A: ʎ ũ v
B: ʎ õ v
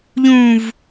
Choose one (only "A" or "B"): A